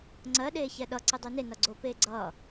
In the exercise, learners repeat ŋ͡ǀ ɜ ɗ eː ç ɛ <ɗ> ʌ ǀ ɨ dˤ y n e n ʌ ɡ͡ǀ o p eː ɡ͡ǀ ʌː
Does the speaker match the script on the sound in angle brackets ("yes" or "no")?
yes